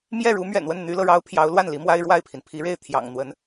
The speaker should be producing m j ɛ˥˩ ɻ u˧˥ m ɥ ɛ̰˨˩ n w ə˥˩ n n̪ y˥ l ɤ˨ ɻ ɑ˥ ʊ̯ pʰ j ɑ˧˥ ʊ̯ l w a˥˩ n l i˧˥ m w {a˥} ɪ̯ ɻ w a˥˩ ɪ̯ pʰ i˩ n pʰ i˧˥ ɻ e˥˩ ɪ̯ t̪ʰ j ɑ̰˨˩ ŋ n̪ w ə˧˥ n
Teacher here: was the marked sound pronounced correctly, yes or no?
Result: yes